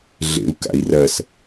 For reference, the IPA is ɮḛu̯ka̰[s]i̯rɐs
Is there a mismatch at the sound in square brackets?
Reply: yes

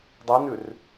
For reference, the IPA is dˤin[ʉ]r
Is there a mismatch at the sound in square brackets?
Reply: no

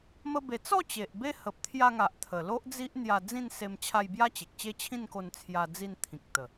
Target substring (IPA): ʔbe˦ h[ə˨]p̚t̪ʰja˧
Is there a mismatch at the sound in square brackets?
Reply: no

